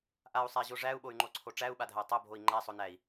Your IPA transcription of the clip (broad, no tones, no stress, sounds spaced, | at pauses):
ʔ a u̯ sˤ æ ʑ o ʐ æ u̯ ɓ o y̯ ŋ͡ǃ o ǀʰ o ʈ͡ʂ æ u̯ ɓ a dʱ æ tˤ o bʱ o i̯ ŋ͡ǃ æ sˤ o n æ i̯